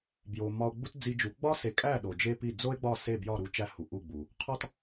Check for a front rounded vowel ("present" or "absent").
absent